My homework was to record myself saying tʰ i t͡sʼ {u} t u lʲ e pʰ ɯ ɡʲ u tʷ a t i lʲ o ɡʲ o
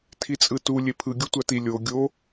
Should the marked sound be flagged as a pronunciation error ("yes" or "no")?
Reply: yes